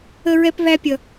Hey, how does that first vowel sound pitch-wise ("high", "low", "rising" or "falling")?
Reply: high